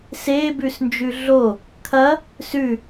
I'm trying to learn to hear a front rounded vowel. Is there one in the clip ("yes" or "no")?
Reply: no